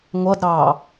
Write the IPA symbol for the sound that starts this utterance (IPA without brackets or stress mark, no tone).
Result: ŋʷ